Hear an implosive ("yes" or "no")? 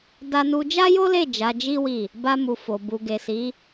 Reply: no